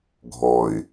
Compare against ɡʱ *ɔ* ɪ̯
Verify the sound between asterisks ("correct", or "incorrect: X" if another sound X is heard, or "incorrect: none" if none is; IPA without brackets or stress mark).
correct